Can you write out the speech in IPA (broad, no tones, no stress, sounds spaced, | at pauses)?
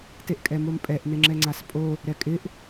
t e ʔ kʼ ɛ m o m pʼ ɛ ʔ n ɪ ŋ͡ǁ ɛ ŋ͡ǀ a s pʼ o | ɾ ɛ kʼ ɪ ʔ